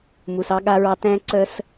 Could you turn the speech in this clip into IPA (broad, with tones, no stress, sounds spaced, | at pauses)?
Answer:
m u˧ s ɑ˥ ɠ a˥ ɹ ɑ˥ t ɛ̃˥ ǀ ə˥ s